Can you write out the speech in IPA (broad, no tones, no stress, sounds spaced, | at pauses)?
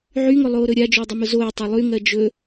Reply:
ʕ y ŋ ʊ lˠ oː ɾ ɵ ɾʲ a d͡ʒ ʊː dˤ ɵ m ʊ z oː tˤ e lˠ y ŋ ɜ d͡ʒ ɵ